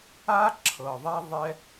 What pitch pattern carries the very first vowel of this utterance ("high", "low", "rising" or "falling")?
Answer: high